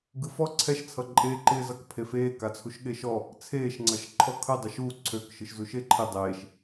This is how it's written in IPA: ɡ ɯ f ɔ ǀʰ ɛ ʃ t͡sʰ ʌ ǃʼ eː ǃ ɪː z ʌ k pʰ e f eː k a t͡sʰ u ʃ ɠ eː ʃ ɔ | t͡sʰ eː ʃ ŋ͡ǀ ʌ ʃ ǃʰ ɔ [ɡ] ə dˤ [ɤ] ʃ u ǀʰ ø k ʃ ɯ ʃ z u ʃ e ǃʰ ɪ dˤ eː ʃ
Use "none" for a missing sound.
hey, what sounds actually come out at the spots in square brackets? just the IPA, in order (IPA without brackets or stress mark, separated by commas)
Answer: kʰ, ɯ